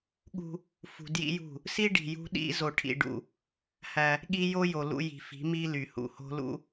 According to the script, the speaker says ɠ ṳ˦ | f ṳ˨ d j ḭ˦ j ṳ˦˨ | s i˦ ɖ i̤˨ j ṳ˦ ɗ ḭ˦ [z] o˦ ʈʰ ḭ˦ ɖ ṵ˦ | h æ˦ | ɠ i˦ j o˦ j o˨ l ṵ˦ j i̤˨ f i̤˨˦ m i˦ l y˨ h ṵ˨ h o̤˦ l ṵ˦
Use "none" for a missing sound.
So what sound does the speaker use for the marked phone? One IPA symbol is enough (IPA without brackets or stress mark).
z